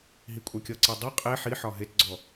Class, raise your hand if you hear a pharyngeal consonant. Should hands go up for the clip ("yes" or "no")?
yes